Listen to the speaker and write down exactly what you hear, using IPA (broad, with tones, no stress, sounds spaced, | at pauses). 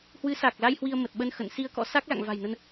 h w ɨ˨˦ s a˨˩ k̚ l a˧ j h w i˧ ə̯ m ə˨˩ t̚ ɓ ə˧ n x ə̰˧˨ n s i˧ ə̯ k ɔ̰˧˥ s a˦˥ k̚ l a̰˧˨ ŋ v a̤˨˩ j n ə˧ n